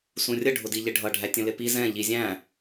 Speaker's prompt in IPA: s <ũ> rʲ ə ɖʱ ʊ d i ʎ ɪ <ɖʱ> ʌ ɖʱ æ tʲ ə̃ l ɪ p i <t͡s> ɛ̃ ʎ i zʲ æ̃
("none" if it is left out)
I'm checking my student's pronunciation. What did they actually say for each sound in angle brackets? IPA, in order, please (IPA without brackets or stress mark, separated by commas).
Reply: ũ, ɖʱ, z